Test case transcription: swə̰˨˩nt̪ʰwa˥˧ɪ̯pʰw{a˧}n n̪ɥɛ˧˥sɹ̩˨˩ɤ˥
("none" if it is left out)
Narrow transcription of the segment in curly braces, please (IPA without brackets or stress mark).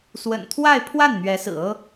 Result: a˥˩